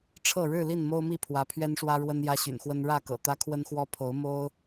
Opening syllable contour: falling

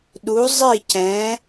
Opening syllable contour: rising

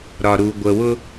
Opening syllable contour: low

